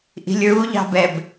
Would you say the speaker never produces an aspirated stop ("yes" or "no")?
yes